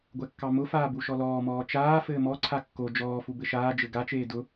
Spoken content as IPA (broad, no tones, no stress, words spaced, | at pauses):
ɡʷɛkːɑmʊfaː buʃɔlɔːmɔː t͡ʃaː fɘːmɔǀʰa kːo d͡ʒɔːfu bɘʃaːd͡ʒɘ ɡat͡ʃeː dʊ